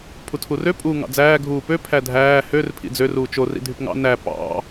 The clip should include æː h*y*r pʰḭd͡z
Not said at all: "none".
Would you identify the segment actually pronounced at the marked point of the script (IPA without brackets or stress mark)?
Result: ø